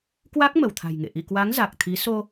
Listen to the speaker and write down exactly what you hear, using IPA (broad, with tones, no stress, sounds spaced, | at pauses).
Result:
k w a˦˥ k̚ m ə˧˩ w t̪ʰ a̤˨˩ j ŋ ḛ˧˨ ʔ ḭ˧˨ k w a˨˦ ŋ z a˨˩ k̚ t̪ʰ i˨˦ s o˧